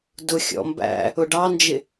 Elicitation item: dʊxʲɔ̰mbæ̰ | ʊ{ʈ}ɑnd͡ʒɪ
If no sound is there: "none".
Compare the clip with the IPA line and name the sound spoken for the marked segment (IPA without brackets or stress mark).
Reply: ɖ